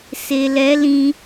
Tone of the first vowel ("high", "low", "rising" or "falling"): low